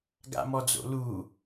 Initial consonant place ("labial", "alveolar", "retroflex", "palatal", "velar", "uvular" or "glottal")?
velar